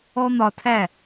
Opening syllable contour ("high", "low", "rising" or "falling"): high